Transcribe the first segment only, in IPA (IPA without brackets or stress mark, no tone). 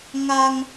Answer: ŋ